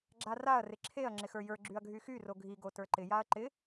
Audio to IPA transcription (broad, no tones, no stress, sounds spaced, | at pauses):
ɡ͡ǁ a r a ɐ̯ r ɪ ǁʰ e ɐ̯ ŋ͡ǁ ɪ x ə˞ j ə˞ ɡ͡ǁ y ɐ̯ ɡʱ y x y r o ɡʱ i ɡ o t ə˞ ǃ ɪ j a ɐ̯ ǃ ɪ